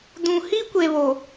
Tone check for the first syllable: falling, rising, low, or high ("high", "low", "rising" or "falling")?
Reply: low